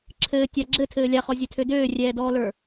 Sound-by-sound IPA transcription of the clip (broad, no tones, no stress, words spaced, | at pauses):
ǁʰɘːtʲa ɡ͡ǁɘtʰɘː lʲaχɔzʲɛtʰø døːrʲɛːdɔːlə˞